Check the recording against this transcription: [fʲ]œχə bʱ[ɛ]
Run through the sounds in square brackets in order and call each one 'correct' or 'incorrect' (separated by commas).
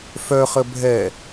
incorrect, correct